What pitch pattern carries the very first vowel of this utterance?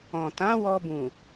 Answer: low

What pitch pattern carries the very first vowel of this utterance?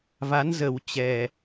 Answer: rising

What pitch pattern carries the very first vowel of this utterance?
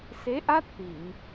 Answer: rising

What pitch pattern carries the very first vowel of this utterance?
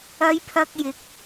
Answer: high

